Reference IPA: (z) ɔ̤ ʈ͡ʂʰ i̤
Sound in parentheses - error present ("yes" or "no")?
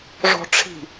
yes